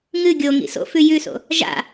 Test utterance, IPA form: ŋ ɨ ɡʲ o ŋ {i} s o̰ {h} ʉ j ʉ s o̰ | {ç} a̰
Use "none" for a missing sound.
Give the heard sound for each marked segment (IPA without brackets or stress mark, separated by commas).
ḭ, f, ʒ